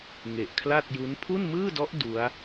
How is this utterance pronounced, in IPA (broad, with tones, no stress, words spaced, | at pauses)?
ŋe˨˩ʔkʰla˥˩t̚ju˦˥n pʰu˥˩nmɯː˥˩dɔ˦˥ʔ du˦˥a̯